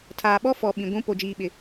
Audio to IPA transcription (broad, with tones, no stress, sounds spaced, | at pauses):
tʰ aː˨ ɓ ɔ˦ f ɔ˨ ɓ ĩ˨ ɡʷ ũ˦ p o˨ d͡ʒ iː˨ ɓ ɪ˨